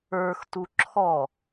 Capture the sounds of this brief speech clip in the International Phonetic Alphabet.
ə˞xtu ǁʰɔ

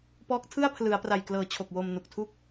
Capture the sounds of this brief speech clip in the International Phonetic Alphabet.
pɔː˦˥k̚tʰɯ˥˩a̯pʰlɯ˩˦a̯pra˨˩j klɤː˩˦ t͡ɕʰo˨˩k̚wo˧m nu˨˩k̚tʰu˥˩k̚

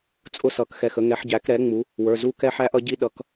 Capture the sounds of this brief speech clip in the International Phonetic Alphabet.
t͡sʼʊ˦sʌ˩˥kxɛ˩˧˩xə˦ ŋɛ˩˥ħ ɟæ˩˥kɾɛ˩˥ ŋ͡mu˩˥ | wə˞˩˧˩zu˦kɛ˦ ħæ˦ʔʌ˦ɟi˦ ɗʌ˩˧˩k

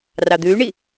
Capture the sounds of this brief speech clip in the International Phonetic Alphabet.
rɑd̪ʉy̯ɳi

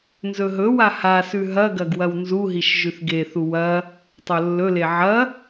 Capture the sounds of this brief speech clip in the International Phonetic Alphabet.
nzɵɦɵwa hasʉ ɦɐɡɐɡ wɐwnzuɦiʃ ʒʉθɡeθu wɐ | tˤolːɵle ʕɐ

